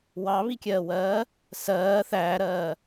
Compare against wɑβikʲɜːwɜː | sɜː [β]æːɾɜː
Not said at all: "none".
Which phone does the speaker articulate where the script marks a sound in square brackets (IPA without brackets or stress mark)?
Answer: θ